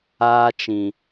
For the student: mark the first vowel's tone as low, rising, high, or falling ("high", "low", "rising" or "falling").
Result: high